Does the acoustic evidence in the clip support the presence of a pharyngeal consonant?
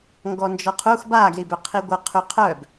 no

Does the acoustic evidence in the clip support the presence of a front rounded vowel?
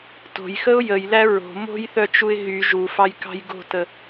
yes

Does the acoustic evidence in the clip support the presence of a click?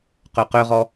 no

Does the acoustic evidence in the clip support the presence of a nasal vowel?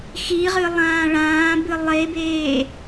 yes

